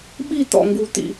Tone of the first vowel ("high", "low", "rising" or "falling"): falling